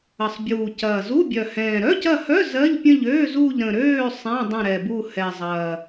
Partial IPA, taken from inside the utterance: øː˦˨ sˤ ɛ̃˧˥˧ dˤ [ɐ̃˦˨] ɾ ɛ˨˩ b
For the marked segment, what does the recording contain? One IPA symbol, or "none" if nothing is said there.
ə̃˦˨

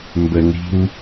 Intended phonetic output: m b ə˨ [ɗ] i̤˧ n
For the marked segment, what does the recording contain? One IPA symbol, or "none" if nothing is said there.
n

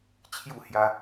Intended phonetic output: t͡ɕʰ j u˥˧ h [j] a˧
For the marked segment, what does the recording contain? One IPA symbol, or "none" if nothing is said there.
j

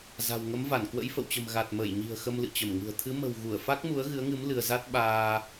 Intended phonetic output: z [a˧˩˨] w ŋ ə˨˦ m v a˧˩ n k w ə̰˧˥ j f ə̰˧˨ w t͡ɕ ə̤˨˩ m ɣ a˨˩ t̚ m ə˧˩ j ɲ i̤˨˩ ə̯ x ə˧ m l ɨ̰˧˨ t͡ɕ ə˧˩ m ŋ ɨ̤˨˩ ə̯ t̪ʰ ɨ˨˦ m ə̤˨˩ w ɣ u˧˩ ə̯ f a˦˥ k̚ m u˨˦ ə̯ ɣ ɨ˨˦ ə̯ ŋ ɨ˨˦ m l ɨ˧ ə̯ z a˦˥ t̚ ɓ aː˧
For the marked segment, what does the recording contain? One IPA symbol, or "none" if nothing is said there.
a̤˨˩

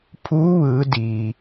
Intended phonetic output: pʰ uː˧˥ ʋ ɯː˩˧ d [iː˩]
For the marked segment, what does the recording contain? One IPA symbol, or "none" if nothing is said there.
iː˩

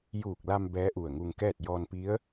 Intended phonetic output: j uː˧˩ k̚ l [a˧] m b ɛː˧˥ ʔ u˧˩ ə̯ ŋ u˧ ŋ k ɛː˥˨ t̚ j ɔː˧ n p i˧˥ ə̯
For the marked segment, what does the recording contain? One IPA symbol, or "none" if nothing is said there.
a˧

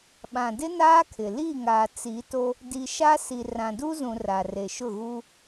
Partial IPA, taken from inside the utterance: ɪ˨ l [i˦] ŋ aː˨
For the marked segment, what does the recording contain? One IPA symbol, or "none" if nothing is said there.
i˦˨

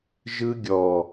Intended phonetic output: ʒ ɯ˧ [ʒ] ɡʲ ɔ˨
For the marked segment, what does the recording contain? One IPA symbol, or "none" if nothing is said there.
none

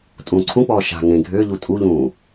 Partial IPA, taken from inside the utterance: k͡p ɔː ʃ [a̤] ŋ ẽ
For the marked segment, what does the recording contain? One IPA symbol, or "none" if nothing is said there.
a̤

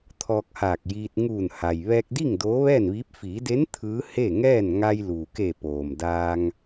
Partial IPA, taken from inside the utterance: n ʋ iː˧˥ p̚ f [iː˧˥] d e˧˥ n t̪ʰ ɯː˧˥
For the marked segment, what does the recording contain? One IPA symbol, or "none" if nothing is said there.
iː˩˧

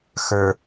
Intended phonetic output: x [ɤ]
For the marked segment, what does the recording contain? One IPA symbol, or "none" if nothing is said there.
ə˞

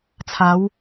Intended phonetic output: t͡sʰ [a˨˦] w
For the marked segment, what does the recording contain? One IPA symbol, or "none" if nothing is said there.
a˨˦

